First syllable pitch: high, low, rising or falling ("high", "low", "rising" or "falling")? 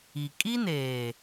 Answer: low